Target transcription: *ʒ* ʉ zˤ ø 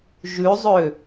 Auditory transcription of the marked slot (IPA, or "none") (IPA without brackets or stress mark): ʒ